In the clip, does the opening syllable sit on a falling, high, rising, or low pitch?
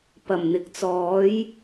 low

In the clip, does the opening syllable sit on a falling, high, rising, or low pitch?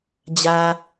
low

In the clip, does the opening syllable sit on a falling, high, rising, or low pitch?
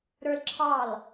high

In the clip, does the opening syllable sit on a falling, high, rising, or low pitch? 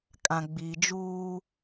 low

